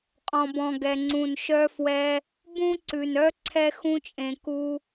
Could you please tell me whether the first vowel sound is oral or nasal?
nasal